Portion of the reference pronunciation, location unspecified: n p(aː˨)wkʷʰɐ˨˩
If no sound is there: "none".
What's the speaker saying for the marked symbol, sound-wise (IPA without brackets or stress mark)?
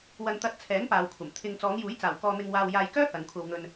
aː˨